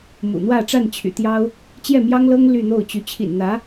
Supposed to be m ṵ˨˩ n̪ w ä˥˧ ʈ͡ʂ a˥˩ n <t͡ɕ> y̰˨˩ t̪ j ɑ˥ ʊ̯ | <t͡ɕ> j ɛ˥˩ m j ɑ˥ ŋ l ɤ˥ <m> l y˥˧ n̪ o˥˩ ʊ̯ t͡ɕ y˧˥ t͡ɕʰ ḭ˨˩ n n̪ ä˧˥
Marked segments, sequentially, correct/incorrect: incorrect: t͡ɕʰ, correct, incorrect: ŋ

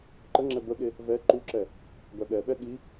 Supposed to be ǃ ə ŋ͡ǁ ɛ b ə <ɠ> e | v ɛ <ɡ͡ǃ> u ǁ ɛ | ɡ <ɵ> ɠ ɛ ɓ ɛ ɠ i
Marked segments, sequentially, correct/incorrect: correct, incorrect: ǃ, incorrect: œ

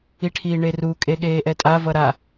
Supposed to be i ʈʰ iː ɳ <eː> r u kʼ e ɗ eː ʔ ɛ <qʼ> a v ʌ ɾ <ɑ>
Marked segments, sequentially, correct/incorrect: incorrect: e, incorrect: tʼ, incorrect: a

